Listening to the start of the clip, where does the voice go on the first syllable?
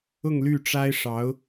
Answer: falling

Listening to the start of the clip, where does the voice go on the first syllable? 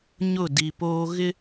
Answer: falling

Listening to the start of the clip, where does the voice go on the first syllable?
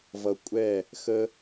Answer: low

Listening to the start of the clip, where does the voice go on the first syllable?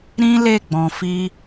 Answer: high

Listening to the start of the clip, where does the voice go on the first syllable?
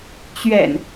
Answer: low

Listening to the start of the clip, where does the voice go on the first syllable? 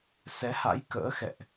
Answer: rising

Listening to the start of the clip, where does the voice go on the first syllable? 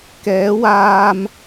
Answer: rising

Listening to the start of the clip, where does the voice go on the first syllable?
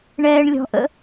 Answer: low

